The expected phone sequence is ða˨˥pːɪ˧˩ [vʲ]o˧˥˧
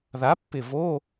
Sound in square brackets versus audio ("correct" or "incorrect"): incorrect